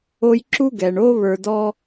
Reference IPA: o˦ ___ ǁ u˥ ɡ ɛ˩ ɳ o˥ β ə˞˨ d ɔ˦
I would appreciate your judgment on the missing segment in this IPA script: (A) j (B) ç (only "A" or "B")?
A